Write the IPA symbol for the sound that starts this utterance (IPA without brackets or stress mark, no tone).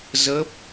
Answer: z